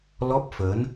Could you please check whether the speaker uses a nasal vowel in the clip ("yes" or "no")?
no